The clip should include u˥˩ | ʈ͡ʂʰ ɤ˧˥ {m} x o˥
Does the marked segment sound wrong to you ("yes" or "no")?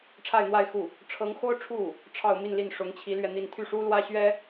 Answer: yes